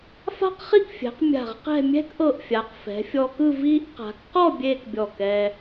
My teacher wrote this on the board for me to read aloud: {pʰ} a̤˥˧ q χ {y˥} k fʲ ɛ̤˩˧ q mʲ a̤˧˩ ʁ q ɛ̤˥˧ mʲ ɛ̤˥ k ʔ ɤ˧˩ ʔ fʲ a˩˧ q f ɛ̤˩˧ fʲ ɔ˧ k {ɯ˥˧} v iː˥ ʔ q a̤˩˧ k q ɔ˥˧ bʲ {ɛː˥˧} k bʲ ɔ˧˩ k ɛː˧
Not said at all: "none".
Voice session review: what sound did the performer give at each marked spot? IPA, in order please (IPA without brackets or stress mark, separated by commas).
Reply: f, i˥, ɯ˥˧, eː˥˧